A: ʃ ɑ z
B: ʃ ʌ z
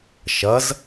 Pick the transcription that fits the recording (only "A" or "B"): B